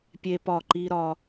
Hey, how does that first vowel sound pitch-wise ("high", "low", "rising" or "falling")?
high